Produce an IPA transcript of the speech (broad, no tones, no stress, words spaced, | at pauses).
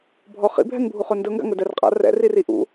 bʱɔ χḭ bʱɛŋbʱuχɵndɵ ŋɡa̰ŋɵdɛrqʼa̰ rɛ̰ ririʔṵ